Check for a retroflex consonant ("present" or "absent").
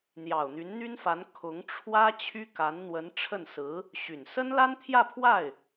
present